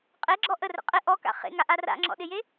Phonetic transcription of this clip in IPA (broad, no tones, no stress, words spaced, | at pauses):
qʼeɡ͡ǁɔ ʔərə̰ qʼɪ ʔɔka̰ χḛŋaʔa ra̰ŋ͡ǁɔ̰ɗɪje